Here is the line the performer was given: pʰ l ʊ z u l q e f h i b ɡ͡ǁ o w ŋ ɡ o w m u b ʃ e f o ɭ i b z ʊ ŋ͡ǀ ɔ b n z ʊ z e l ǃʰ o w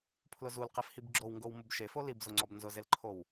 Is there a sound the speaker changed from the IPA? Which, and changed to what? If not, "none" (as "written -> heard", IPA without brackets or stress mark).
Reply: ɭ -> l